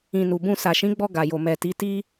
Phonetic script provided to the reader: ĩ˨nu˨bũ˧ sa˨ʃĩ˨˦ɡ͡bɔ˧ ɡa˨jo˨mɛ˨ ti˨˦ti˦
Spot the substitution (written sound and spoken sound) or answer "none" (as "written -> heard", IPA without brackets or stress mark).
none